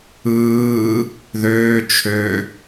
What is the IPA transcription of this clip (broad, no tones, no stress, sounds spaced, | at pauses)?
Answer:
ɯː | ð øː t͡ʃʰ ø